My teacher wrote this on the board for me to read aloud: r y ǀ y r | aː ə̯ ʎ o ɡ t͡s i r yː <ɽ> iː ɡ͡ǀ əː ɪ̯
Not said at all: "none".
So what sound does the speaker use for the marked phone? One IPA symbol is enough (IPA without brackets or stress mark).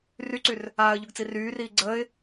r